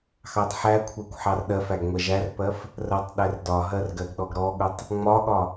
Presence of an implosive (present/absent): present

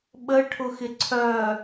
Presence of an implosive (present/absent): present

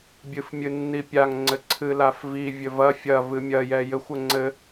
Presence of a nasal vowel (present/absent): absent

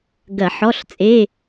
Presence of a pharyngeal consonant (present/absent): present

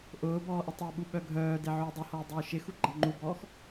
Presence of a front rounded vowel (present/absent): present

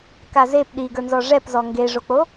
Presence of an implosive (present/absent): present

